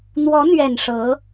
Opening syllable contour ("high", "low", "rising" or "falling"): rising